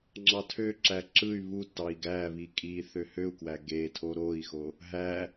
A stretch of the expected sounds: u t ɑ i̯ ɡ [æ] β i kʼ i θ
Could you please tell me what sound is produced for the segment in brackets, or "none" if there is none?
æ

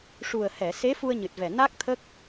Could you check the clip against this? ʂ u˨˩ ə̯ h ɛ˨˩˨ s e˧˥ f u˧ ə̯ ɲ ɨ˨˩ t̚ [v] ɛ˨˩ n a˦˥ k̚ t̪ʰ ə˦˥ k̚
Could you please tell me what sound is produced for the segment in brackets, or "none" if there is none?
v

